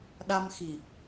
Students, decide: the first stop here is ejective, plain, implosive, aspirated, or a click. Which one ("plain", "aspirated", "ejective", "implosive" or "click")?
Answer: implosive